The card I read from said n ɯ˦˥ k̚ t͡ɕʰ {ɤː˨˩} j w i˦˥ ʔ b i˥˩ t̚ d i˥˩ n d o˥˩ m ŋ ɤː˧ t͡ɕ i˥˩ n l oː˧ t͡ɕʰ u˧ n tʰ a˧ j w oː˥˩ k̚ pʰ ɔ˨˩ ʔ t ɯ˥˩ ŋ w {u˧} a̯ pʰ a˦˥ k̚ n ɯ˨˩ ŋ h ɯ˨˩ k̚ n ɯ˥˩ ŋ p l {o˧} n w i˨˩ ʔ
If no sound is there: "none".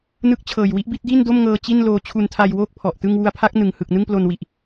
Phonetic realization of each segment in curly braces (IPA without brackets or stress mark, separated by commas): ɤː˨˩, u˧, o˧